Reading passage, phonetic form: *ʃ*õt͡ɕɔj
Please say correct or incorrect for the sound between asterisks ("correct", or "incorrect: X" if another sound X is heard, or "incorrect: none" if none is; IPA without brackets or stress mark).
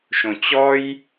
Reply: correct